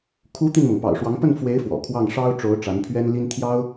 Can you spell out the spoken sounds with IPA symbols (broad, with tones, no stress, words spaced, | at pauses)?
kʰu˧˥ t̪i˥˩nmɤ˩ŋ pɑ̰˨˩ʊ̯ʂwɑ˧˥ŋ pə˥˩nfwe˧˥ɪ̯ fwɔ̰˨˩kʰwɑ˥˩ŋ ʂɑ˥ʊ̯ʈ͡ʂo˧˥ʊ̯ ʈ͡ʂa˧˥npʰɥɛ˥nli˥n t̪ʰjɑ˥ʊ̯